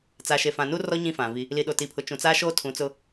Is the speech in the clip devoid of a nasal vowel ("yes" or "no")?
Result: no